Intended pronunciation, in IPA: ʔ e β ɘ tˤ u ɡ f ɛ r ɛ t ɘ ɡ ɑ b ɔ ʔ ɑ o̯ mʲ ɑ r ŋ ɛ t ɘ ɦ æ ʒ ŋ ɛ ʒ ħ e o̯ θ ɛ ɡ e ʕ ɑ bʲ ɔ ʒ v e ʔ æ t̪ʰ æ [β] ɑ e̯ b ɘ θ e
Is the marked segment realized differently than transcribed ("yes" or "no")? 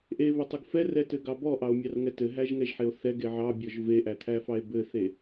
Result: yes